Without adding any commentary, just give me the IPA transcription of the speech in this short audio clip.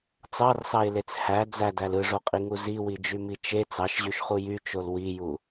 t͡s ɑ r s ɑ ɪ̯ l e t͡s h æ d͡z æ d æ l ɯ ʐ o qʼ i ŋ u z i w i d͡ʒ y m i t͡ʃ e t͡s ɑ ʃ ʑ y ʃ χ u j y t͡ʃ o l w i j u

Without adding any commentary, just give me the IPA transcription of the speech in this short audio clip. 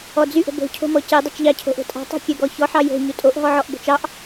ɔ d͡z y ʔ ə̤ b o̤ cʰ o̤ m ɔ c e dˤ o t͡ʃ ʎ ɑ cʰ o̤ ʔ o̤ tʼ ɑ̤ tˤ o̤ kʲ œ ɡ ɔ ç ɔ ħ ɑ j o̤ ɲ u tʼ o ʔ ɦ ɔ ʕ ɔ ʔ b o̤ t͡ʃ ɑ ʔ

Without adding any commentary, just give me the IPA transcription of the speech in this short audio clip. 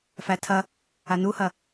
f æ tʰ ɐ | a n u h ɐ

